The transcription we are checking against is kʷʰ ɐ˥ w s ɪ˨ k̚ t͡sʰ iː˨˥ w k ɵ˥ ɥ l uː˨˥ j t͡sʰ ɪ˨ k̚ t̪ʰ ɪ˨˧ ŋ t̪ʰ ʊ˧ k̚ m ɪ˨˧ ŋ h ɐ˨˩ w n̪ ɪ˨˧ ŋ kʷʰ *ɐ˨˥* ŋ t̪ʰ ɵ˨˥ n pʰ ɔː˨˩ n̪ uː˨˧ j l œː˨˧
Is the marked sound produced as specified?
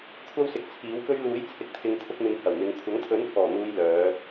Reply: yes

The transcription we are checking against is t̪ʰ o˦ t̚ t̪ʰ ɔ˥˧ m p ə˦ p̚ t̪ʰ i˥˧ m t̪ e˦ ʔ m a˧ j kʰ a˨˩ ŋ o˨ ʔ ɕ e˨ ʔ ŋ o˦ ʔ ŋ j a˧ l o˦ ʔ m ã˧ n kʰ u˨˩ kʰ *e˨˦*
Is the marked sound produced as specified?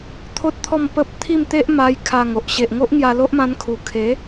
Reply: yes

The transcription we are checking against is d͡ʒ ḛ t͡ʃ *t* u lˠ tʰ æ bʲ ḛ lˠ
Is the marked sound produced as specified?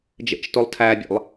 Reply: yes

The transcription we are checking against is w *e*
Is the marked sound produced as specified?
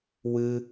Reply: no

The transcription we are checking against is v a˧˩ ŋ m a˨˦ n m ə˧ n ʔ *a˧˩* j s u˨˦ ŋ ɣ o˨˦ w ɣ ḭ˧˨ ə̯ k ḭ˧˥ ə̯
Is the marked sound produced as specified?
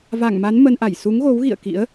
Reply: yes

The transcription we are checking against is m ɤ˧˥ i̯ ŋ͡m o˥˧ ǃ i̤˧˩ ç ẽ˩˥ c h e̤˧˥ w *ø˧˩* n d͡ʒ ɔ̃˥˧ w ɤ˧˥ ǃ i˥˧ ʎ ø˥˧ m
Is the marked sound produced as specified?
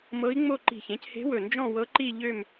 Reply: no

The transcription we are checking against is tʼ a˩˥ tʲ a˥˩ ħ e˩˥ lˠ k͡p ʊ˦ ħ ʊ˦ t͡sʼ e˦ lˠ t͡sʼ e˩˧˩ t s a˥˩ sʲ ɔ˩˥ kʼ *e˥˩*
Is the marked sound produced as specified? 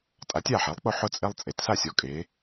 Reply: no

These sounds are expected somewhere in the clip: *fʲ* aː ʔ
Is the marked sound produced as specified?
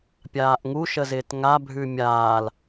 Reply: no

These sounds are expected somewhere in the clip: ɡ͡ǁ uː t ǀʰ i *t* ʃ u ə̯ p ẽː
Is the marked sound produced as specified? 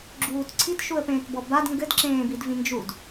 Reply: yes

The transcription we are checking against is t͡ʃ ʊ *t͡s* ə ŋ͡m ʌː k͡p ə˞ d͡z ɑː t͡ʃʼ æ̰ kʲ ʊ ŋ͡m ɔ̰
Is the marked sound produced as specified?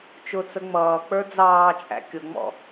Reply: yes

